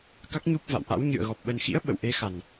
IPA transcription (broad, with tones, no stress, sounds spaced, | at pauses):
k a˦˥ k̚ ɲ u˦˥ p̚ v a̰˧˨ w ʔ a̰˧˥ w ɲ ɨ̰˧˨ ə̯ ɣ ɔ˨˩ p̚ ɓ ə˨˩ n x ḭ˧˥ ə̯ ɓ ə̰˧˨ w ʔ e˨˦ x a˨˩ n